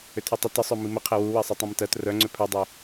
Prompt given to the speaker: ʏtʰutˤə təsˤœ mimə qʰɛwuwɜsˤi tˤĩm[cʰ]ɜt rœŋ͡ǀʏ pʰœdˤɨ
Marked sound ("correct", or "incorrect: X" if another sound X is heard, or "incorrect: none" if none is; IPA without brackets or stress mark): incorrect: t